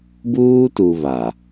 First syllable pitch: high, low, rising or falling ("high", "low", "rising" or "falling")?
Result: high